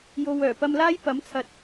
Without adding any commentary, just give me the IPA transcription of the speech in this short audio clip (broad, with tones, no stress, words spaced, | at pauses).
jo˧w œː˨˩pɐ˧mlaː˥j pɐ˨˥mt͡sʰɐ˨t̚